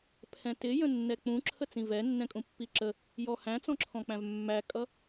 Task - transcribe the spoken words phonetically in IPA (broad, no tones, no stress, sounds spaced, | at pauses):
pʰ ɛ̃ t ɪ j ə̃ nː ɛ k͡p ũ ǁʰ ə t͡s ĩ v ɛ nː ɛ̃ kʼ ũ pː i ǁ ə | j ɔ h æ̃ t͡s ɔ̃ ǁʰ ɔ̃ k͡p æ̃ v mː æ kʼ ʌ